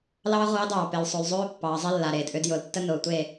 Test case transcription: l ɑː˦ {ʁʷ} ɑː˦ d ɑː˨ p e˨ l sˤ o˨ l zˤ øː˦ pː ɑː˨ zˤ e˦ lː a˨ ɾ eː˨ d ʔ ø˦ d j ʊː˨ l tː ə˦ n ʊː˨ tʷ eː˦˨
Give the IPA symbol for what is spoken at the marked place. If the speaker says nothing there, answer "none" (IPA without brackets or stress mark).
ʁʷ